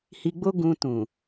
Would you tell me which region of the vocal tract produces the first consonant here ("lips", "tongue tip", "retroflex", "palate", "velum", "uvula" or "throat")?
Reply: throat